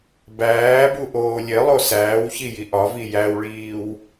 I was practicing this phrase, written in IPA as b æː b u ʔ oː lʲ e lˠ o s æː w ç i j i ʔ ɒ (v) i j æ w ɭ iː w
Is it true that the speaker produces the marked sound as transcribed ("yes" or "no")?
yes